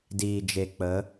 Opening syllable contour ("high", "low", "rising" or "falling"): low